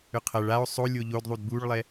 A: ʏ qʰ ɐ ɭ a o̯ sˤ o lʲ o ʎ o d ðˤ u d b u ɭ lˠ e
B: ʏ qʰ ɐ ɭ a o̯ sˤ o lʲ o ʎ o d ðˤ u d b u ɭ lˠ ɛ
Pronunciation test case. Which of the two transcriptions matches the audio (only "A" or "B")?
B